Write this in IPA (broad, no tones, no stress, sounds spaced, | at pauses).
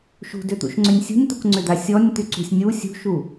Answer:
ʃ ṳ d ʏ t̪ ṵ ʃ ŋ͡ǀ ʏ nʲ sʲ ṳ nʲ t̪ u k ŋ͡ǀ ʏ d̪ a sʲ ɔ nʲ t̪ y ǀ ṳ sʲ nʲ u sʲ ṳ ʃ u